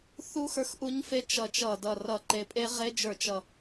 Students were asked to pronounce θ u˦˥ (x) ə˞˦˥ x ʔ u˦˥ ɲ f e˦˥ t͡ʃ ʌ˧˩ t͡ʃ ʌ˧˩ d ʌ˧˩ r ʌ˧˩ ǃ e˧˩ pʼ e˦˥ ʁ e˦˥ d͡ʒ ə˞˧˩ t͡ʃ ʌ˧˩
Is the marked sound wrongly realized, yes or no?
no